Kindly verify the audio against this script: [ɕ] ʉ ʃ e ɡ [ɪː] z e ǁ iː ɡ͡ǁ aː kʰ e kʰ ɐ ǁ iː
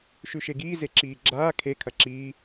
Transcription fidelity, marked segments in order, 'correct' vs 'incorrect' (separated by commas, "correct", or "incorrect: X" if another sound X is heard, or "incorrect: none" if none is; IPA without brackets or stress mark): incorrect: ʃ, incorrect: iː